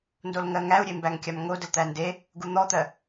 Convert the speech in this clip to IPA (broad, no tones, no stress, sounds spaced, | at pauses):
n d o l ŋ ɜ ŋ æ u̯ ɾʲ e m b æ ŋ kʲ a m ŋ o d ə l t̪ æ n d e | ɡ u n̪ ɔ t̪ ɜ